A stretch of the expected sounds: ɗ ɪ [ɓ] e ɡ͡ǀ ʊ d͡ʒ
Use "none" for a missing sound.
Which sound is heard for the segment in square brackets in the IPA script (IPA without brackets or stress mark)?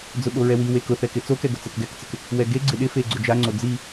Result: f